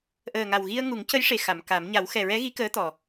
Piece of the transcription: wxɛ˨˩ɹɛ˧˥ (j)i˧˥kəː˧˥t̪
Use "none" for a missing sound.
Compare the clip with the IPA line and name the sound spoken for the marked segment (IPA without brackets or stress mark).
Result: ɣ